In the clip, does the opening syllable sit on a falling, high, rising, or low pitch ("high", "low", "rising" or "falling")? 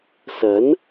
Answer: rising